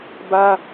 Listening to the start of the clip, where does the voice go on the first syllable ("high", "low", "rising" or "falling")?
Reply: high